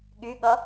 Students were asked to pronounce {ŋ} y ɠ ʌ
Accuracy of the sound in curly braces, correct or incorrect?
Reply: incorrect